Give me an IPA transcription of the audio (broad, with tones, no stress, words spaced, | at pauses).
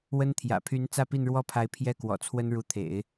wə˥nt̪ʰjä̰˨˩ pʰy˧˥n t͡sä˥˧pi˥˧nɻwɔ˥˩pʰa˧˥ɪ̯ pʰjɛ˥˩kwɔ̰˨˩t͡sʰwə˥n ɻu˧˥t̪ʰḛ˨˩˦ɪ̯